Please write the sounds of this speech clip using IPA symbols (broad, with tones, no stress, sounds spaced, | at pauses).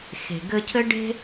x e̤˨ ɡ ɘ˦ cʰ ɘ˥ ɖ e̤˥